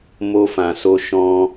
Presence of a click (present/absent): absent